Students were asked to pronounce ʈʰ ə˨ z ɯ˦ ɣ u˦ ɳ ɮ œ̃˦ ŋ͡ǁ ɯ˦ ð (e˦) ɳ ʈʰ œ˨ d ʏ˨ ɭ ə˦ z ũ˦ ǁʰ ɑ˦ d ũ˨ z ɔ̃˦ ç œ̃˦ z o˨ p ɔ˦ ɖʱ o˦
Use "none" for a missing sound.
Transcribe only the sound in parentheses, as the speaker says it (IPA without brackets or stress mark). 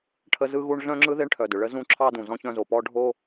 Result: e˦